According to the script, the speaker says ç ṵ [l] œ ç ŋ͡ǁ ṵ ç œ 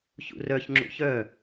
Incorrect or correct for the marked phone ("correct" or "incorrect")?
incorrect